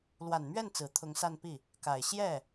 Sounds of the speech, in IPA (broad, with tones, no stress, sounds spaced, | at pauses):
l w a˨˩ n m ɥ ɛ˥˩ n t͡s ɹ̩˨˩ t̪ʰ ʊ˧˥ ŋ s a˥˧ n p i˥˩ | k a˨˩ ɪ̯ ɕ j ɛ˥˩